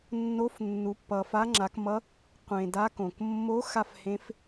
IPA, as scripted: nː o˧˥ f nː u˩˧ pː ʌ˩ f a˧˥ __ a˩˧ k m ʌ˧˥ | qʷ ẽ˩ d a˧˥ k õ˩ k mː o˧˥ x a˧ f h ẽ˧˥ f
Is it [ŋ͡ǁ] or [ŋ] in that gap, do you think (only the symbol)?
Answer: ŋ͡ǁ